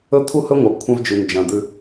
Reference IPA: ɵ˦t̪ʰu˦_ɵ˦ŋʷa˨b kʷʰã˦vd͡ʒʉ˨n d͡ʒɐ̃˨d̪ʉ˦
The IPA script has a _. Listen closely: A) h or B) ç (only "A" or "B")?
A